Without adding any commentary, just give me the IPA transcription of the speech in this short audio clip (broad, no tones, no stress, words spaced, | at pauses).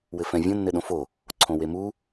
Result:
wɘfɛ̃vʲõ nːɘɗõfo | ǀʰõwemu